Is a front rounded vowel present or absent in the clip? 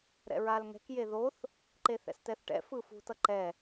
absent